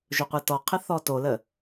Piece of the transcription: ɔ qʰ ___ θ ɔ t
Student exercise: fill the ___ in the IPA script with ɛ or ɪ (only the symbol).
ɪ